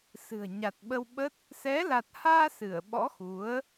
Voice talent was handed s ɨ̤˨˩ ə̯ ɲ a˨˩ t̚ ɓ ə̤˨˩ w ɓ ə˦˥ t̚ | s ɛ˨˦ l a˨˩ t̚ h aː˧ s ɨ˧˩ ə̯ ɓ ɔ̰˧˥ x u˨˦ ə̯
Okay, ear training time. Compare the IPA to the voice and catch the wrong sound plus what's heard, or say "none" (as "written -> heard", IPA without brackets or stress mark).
ə̤˨˩ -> ə˧